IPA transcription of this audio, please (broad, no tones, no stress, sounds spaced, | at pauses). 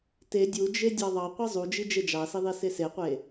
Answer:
t e dʲ u d͡ʒ e dʲ ɑ ðˤ ɑ qʷ i zˤ u d͡ʒ i d͡ʒ e d͡ʒ ɑ s i ðˤ i s e s e qʷ e